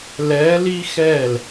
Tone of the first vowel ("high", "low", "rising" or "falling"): rising